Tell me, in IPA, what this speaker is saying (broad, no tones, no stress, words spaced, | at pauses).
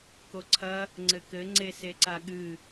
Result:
koǀʰɐ | ŋ͡ǀɘkɘ ŋ͡ǀeseǀaɠɨ